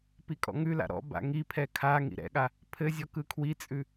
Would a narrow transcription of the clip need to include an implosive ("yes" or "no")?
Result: yes